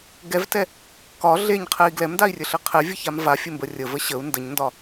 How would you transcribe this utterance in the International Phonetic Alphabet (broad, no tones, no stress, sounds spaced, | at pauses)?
ɡ ɛ v t ɛ | k ɒ ɮ e ɲ qʰ ɛ i̯ ɡ l ɛ m d a i̯ rʲ ɘ ɬ ɘ qʰ ɛ vʲ ə ç a m v a fʲ ɘ m b ə rʲ ə v ə ɕ ə u̯ n d ə ɲ n d ɒ